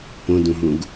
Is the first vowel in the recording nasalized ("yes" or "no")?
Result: yes